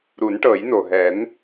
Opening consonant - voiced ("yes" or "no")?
yes